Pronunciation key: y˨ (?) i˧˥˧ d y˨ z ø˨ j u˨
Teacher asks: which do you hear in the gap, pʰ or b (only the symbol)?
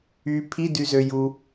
pʰ